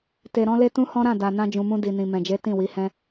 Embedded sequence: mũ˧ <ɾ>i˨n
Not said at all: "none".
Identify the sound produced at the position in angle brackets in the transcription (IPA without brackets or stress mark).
d